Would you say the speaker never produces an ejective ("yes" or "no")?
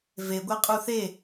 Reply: no